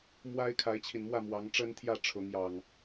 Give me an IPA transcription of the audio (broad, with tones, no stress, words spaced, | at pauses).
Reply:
mwa˦ɪ̯ kʰa˨˦ɪ̯t͡ɕʰi˨˩nmwä˥˨mwɑ˨˦ŋ ʈ͡ʂə˦nt̪ʰjä˥˨ ʈ͡ʂʰʊ˨˦ŋjɑ˨˩ŋ